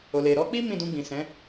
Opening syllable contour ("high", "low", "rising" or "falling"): low